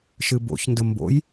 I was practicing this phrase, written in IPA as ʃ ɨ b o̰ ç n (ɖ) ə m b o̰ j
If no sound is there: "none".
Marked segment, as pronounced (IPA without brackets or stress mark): d